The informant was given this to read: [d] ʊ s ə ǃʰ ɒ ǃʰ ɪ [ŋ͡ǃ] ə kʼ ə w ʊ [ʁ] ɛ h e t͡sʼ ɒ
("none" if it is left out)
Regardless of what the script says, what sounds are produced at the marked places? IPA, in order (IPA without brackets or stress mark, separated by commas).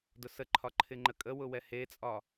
d, ŋ͡ǃ, w